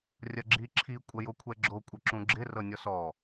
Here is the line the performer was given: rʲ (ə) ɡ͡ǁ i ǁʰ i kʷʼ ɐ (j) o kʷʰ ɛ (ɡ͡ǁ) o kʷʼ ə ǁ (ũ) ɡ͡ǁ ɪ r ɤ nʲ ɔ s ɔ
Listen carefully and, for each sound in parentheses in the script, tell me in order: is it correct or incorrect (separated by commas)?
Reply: incorrect, correct, correct, correct